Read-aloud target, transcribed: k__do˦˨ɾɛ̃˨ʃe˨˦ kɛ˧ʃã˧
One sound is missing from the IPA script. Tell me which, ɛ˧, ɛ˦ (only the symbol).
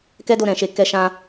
ɛ˦